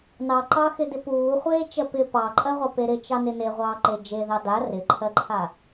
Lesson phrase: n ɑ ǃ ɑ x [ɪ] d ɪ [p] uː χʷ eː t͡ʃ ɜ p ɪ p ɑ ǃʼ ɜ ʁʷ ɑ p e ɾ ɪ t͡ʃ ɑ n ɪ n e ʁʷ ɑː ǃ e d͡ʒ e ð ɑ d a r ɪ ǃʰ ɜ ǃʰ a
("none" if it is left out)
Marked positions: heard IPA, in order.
ɪ, p

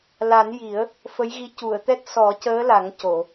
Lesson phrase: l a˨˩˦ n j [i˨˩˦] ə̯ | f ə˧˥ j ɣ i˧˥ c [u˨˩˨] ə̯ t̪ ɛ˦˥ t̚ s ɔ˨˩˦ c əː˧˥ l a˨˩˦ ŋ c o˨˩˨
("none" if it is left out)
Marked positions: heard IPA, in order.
i˨˩˦, u˨˩˨

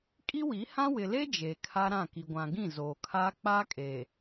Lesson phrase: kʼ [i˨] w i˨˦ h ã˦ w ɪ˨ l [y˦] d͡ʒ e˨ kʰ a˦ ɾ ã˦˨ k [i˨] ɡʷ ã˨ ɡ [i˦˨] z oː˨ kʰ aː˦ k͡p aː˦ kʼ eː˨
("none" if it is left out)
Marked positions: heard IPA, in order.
i˦, e˦, i˨, ĩ˦˨

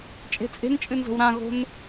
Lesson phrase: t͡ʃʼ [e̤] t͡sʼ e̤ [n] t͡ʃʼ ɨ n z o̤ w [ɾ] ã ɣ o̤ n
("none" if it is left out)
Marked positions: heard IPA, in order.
e̤, n, ɾ

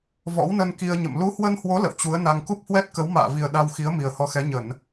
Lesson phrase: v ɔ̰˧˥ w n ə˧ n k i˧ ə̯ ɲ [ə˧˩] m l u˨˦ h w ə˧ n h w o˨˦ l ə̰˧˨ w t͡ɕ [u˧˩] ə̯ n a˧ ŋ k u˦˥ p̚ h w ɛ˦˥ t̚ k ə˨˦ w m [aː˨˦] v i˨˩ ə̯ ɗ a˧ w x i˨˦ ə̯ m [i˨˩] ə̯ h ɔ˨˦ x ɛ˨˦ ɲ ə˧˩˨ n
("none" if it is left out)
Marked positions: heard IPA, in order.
ə̰˧˨, u˨˦, a̰ː˧˨, i˨˩

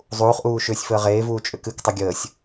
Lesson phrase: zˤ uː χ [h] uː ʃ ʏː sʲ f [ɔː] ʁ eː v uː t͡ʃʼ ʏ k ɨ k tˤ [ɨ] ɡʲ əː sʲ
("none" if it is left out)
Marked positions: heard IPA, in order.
ʔ, əː, ʏ

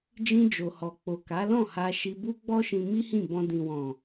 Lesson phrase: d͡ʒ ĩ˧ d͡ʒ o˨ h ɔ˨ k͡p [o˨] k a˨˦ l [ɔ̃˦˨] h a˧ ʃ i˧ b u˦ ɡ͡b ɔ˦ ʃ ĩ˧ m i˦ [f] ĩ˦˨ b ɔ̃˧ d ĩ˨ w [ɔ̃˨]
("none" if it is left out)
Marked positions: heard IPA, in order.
o˨, ɔ̃˦˨, h, ɔ̃˨

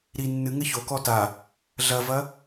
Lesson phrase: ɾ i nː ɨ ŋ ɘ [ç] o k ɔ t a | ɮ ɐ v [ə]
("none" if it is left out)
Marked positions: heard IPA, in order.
ç, ɐ

